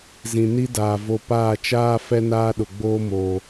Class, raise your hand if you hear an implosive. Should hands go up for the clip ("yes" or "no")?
yes